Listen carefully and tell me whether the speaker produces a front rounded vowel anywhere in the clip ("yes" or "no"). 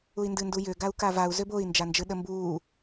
yes